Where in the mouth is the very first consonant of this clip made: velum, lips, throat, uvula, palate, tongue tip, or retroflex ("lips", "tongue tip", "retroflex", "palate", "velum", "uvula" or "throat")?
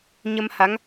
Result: palate